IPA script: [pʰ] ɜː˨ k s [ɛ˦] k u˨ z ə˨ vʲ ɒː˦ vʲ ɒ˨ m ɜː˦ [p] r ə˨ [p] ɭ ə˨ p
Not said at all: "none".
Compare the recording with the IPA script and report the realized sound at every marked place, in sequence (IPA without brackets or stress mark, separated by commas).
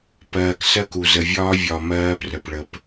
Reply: p, ɜ˦, p, p